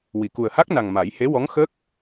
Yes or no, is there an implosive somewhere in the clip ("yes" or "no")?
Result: no